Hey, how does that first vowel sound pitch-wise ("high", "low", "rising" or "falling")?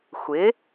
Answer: rising